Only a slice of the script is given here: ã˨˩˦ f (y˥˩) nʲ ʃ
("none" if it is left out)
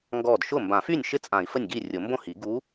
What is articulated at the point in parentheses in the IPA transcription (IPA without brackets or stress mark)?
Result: y˥˩